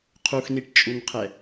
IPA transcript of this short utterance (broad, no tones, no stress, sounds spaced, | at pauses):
qʰ u x n i ʈ t͡ʃʼ u n qʰ ɛ